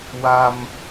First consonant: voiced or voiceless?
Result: voiced